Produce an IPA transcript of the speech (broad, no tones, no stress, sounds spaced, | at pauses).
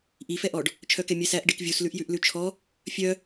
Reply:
ʔ i f ɛ ʔ ɔ ɖ | t͡ʃʰ œ k ɛ mʲ ɛ s æ ʔ ɖ i k vʲ u s l ʉ ʔ j ʉ ʔ l ʉ t͡ʃʰ ɔ | fʲ œ